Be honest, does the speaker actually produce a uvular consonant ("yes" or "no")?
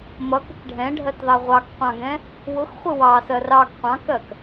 yes